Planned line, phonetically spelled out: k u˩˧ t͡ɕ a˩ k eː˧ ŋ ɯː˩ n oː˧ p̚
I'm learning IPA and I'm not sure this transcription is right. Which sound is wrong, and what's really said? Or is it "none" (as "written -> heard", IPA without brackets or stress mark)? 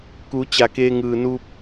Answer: oː˧ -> uː˧